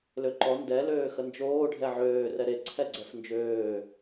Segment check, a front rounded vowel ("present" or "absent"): present